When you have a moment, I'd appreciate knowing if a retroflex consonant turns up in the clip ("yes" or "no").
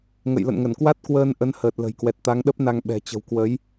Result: no